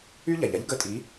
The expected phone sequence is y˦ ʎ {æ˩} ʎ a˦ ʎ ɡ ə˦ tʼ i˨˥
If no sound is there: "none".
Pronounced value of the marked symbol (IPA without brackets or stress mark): a˩